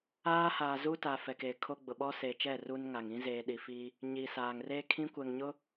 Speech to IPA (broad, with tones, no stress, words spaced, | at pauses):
aː˦haː˨zu˦ta˨ fɛ˨ke˨kʰo˦ɡ͡bʊ˨ ɓɔ˦se˨t͡ʃɛ˦˨ ru˦nŋa˨ŋ ĩ˦zeː˨ɗi˨fiː˦ | ɲi˨saː˨ŋ reː˦kʰĩ˦kʷɛ˨ŋɲʊ˦